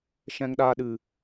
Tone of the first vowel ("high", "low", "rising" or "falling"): high